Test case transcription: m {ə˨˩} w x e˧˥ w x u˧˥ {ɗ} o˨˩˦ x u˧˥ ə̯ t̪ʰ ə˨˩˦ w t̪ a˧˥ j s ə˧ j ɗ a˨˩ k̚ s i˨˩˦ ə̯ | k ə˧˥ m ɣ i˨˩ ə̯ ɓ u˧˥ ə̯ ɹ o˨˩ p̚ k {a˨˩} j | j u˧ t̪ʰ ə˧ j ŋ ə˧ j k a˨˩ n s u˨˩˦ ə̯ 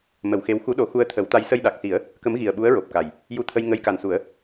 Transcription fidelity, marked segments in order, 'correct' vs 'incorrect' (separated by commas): incorrect, correct, correct